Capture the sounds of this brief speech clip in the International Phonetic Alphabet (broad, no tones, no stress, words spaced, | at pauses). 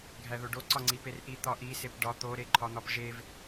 ɡʱæðoɖo ǀɒŋ͡ǀiperʔi t̪ɒʔi sepɖɒ t̪o ɾeǃʰɒn̪ɒpʒev